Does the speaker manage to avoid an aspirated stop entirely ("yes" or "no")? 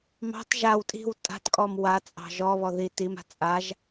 yes